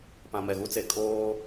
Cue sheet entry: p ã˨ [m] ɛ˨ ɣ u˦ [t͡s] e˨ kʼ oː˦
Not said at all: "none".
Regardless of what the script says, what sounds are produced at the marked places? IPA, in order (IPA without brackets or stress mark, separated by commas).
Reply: m, t͡s